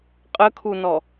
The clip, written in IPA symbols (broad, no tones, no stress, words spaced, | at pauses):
qʼəkʰunɔ